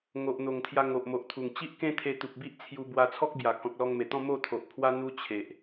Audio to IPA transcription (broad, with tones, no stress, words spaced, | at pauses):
ŋo˨ʔn̪o˨˩ŋt̪ʰja˧ ŋo˨ʔmo˨ʔt̪ʰu˨˩ŋ t͡ɕi˦ʔkẽ˦t̪ʰe˧ t̪u˨p̚bi˦ʔt͡sʰju˧ bwa˧t͡sʰɔ˦k̚bja˨˩ kɔ̃˨k̚lɔ˧ŋme˨˩t̪ɔ̃˥˧ mo˥˧t̪ʰo˨ʔpʰwa˦ n̪u˦ t͡ɕʰe˨ʔ